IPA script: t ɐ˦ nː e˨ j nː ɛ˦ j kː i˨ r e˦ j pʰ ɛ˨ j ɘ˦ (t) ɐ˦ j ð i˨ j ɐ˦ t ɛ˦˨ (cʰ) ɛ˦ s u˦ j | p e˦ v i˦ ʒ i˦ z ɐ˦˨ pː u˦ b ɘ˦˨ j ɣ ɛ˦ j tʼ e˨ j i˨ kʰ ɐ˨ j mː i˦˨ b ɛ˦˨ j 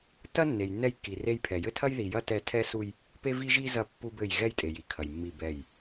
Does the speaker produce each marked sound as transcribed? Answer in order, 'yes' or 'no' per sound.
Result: no, no

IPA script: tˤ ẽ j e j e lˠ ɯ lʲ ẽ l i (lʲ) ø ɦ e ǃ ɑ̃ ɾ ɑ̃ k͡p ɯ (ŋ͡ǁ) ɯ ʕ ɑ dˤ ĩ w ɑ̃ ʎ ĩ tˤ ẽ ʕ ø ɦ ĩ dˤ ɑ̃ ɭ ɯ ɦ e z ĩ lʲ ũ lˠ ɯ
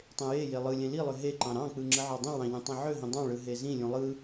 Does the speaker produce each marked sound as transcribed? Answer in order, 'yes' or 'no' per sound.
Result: no, yes

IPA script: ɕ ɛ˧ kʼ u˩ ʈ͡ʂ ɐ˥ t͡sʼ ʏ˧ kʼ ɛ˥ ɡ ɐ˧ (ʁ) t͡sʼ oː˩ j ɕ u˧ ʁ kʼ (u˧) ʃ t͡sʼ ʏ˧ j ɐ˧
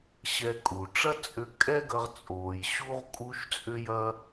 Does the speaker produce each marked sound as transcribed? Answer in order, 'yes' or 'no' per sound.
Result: yes, yes

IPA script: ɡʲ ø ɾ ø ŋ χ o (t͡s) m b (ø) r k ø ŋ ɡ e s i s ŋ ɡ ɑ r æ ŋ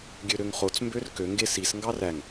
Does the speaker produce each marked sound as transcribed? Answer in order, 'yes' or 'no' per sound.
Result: yes, yes

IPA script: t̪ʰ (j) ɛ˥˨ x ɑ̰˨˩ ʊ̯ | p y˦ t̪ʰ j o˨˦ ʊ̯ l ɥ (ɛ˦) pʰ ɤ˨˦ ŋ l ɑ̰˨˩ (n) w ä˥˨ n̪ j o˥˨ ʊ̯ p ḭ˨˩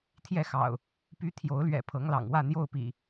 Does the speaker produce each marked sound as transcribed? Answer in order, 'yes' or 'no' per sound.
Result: yes, no, no

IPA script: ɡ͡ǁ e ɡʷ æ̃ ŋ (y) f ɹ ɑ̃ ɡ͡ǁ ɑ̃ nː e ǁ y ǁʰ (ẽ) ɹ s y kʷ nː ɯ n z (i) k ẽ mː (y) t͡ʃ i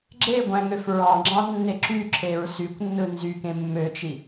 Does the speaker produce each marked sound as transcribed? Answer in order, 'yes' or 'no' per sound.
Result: no, no, no, no

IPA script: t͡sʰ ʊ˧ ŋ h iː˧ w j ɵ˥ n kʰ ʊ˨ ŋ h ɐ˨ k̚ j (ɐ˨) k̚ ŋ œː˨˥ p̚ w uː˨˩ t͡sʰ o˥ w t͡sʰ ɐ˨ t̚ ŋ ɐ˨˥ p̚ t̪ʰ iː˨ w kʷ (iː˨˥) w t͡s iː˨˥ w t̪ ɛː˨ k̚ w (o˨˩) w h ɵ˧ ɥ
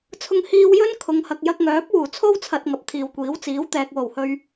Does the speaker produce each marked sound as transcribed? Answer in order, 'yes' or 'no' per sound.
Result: no, yes, yes

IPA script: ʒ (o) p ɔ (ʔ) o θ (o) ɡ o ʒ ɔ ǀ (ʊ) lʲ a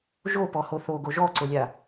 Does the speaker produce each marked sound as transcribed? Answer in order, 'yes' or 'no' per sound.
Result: yes, no, yes, yes

